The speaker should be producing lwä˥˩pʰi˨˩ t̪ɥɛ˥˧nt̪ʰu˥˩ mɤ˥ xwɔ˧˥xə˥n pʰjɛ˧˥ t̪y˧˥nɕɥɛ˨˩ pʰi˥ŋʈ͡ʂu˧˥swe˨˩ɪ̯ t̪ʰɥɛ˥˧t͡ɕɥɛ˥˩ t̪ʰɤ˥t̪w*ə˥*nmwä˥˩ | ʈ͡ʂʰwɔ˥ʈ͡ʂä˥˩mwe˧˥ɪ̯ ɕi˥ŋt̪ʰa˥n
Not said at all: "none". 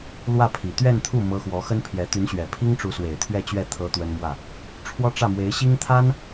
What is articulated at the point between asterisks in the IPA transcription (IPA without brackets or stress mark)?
ə˥